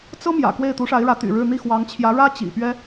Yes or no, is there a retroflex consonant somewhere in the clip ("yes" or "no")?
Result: yes